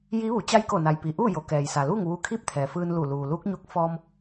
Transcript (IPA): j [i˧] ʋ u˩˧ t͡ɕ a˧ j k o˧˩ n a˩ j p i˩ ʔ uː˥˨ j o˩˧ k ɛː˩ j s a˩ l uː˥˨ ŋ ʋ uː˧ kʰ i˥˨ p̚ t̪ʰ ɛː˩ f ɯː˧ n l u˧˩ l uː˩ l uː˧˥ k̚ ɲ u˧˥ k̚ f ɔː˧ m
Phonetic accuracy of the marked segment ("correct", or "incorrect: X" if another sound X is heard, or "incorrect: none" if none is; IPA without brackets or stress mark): incorrect: i˧˥